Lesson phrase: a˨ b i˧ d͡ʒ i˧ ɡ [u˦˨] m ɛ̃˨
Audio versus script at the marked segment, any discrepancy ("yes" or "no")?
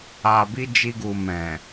yes